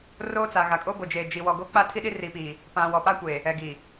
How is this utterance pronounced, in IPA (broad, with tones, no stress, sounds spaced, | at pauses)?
r oː˦ t͡s a˨ ɣ a˨ kʼ o˦ b o˨ d͡ʒ eː˨ d͡ʒ i˨ w ɔ˨ ɡ o˦ k͡p a˦ tʰ i˦ ɗ i˦ r iː˨ p iː˨ | p ã˨ w ɔ˨ p a˦ kʷ eː˨ | ɛ˨ ɡ i˨